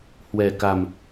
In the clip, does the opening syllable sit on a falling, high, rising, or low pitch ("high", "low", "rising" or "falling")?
low